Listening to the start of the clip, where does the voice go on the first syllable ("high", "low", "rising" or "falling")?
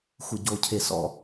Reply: low